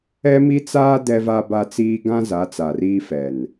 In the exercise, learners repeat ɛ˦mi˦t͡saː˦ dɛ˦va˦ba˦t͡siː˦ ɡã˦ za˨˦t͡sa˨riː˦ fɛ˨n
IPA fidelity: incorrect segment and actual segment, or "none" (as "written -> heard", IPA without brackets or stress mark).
none